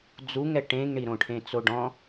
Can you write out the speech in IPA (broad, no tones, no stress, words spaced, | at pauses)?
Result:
d͡zuŋɛ ʈẽŋɳiɾõ ʈʰẽt͡soɖɔ̃